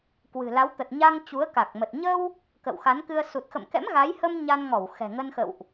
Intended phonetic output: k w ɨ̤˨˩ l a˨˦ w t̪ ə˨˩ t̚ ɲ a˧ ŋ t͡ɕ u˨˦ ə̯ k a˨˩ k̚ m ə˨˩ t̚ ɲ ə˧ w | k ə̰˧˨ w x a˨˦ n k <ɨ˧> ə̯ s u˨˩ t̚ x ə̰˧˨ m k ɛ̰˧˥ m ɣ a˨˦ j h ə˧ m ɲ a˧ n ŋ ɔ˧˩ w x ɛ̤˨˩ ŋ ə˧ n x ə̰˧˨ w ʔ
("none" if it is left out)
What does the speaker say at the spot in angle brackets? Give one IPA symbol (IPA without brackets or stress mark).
ɨ˧